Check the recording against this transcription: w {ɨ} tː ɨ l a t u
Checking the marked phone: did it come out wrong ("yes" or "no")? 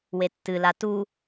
yes